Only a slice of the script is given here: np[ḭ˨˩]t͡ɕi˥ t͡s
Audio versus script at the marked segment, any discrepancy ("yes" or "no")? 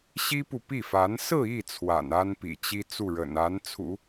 no